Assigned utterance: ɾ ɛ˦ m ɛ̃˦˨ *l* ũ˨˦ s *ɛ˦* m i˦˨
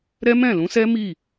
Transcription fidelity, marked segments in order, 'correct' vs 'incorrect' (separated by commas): correct, correct